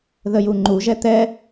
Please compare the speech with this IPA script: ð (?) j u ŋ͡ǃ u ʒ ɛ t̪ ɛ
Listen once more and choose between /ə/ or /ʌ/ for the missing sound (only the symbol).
ə